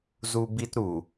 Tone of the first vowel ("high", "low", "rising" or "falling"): high